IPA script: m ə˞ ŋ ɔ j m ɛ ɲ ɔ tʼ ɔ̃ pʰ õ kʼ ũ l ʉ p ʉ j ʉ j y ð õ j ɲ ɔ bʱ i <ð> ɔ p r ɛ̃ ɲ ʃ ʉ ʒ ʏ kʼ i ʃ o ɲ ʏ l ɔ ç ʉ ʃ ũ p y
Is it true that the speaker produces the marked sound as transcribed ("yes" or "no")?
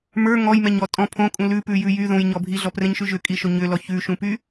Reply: no